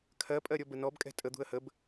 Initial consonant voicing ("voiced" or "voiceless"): voiceless